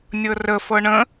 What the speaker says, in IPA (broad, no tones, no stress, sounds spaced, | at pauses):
nʲ ɤ r ə f ɤ ɳ ə̃